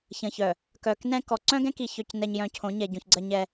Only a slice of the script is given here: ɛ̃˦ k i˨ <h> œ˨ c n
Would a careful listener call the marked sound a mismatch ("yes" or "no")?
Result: yes